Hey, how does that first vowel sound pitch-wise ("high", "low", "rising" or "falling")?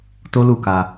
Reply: high